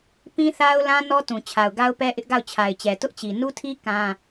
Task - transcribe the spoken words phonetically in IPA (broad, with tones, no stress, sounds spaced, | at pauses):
p ĩ˦ θ a˦ ʊ̯ l ã˦ n ɔ˦ t ũ˨ t͡ɕʰ a˨ ʊ̯ ɡ a˦ ʊ̯ p ɛ˦ ʔ ɪ˦ ʔ ɡ a˦˨ ʊ̯ t͡ɕʰ a˨ ɪ̯ t͡ɕ ɛ˨ t ʊ˦ ʔ t͡ɕ i˨ n u˦ tʰ i˦ k ã˦